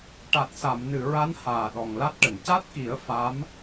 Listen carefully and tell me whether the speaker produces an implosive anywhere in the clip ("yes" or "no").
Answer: yes